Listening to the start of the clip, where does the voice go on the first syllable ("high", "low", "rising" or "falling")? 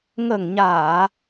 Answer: low